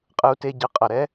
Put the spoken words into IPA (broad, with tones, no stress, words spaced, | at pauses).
qʼɯ˧u̯te˧ ɟɯ˨˦ qʼʌ˨ɾɛ˦